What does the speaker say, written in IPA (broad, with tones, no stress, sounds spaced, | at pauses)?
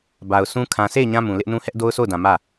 b a˨ ʊ̯ sʰ ũ˦ kʰ ã˨ sʰ e˦˨ ɪ̯ ɲ ã˦ m ũ˨ l ɪ˦ ʔ n ũ˦ h ɛ˦ ʔ d o˦ ʊ̯ s o˦˨ ʊ̯ d ã˨ m ä˦˨